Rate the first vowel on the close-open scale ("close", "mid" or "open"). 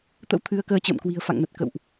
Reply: mid